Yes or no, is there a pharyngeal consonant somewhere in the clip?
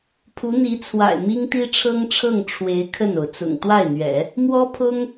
no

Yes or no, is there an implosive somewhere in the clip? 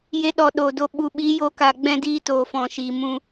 yes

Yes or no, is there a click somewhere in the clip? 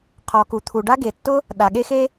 no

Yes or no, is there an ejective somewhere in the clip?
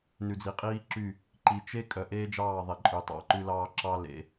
yes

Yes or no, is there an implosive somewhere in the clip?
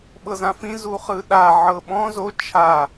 yes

